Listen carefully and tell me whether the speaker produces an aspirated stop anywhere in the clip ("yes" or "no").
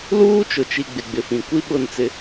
no